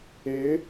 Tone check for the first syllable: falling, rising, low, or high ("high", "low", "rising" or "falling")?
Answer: rising